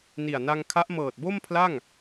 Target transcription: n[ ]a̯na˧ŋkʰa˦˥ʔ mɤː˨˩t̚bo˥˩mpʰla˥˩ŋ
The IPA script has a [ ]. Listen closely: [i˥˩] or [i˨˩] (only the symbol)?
i˨˩